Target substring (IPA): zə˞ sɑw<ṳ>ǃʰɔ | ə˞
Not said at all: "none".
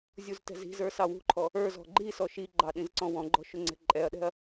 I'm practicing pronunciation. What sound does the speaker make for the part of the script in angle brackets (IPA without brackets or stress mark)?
ṳ